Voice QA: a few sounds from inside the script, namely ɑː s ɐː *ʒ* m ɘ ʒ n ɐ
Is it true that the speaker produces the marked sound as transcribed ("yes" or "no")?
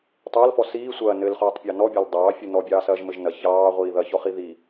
yes